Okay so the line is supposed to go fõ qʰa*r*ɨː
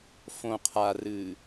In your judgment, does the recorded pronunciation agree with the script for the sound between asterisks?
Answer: yes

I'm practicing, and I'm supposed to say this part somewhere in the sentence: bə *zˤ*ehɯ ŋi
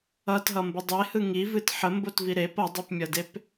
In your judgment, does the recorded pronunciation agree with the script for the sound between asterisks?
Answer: no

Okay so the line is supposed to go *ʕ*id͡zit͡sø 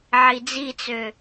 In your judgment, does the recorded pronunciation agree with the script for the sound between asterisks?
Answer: yes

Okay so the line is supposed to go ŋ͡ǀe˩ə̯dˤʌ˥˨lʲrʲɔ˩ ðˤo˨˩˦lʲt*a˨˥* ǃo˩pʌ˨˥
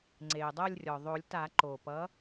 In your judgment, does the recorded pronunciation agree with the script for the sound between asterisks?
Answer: no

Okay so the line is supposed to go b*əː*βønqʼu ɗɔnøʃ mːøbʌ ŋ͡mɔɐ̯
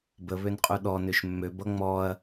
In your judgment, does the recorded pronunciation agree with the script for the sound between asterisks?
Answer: no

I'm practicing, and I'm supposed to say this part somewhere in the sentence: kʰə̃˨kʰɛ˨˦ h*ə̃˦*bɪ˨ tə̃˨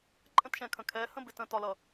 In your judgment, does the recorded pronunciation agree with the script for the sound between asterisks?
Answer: yes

